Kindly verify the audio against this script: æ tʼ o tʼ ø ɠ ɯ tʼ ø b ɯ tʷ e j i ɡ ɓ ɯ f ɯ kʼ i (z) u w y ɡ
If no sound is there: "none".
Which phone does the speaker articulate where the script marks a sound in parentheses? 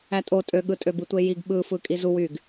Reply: z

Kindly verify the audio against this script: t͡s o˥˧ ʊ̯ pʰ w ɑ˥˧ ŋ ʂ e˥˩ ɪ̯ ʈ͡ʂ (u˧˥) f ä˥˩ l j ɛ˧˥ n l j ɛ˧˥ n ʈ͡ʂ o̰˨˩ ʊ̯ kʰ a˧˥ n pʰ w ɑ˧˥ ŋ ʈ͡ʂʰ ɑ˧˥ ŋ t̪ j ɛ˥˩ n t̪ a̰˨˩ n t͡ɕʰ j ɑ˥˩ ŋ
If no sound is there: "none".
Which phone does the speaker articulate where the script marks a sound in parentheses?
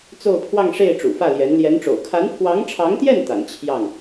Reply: ṵ˨˩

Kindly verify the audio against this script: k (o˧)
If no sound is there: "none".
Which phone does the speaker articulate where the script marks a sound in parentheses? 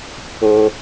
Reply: o˧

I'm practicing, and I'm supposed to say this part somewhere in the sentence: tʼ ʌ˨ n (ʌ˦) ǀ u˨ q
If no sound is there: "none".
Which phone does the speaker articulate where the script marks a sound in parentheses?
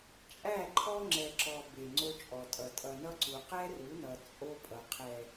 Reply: ʌ˦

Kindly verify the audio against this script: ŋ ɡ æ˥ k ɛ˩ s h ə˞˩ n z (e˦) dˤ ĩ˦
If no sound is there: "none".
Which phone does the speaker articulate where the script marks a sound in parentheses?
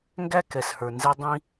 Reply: e˦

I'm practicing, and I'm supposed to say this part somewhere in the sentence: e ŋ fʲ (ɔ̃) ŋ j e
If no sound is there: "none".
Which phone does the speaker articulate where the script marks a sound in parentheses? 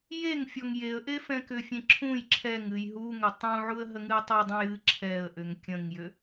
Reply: ɔ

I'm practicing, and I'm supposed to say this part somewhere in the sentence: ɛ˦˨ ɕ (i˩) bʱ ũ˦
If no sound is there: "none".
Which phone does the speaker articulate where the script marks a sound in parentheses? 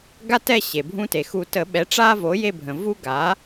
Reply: e˩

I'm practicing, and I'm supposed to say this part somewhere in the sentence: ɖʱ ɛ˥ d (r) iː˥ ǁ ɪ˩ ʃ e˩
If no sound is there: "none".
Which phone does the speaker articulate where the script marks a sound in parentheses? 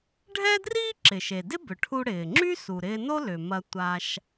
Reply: r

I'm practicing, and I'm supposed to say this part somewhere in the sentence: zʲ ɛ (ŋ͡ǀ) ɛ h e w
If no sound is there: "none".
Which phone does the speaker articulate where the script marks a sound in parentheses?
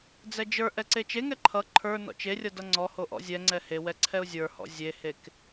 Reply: ŋ͡ǀ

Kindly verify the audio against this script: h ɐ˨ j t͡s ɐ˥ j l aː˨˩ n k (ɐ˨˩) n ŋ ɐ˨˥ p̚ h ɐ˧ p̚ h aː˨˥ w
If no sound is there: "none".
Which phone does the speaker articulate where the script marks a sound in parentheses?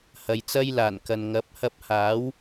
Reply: ɐ˨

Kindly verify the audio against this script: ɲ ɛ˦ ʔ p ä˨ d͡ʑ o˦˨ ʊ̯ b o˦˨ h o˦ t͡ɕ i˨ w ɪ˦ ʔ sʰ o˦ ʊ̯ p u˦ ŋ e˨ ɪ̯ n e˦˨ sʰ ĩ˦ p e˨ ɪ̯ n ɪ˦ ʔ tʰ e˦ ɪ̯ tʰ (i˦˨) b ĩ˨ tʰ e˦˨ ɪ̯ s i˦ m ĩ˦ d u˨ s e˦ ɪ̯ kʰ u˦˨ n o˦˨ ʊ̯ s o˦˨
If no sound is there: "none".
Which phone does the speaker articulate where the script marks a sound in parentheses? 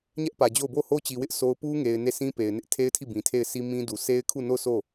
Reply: i˦˨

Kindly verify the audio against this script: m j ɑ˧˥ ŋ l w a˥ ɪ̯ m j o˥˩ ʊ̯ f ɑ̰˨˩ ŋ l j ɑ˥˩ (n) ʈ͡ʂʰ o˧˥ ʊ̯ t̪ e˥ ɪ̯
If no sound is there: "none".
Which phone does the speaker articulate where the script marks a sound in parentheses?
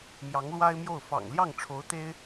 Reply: ŋ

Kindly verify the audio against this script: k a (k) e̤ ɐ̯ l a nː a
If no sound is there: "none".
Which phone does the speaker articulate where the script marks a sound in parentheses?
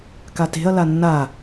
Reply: t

